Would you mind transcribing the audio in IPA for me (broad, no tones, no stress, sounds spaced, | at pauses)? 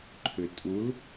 ǃʰ ʏ tʼ u l